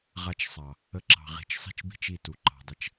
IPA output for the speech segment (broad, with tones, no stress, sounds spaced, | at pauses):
ʁ a˨ t͡ʃ sˤ ɑ˨ | ə˧ ǁ ɑ̤˨ ʁ i̤˨ t͡ʃ sˤ i̤˦ t͡ʃ b i̤˦ t͡ʃ i˦˨ t u˨ ǃ ɑ̤˨ dˤ ə˧ t͡ʃ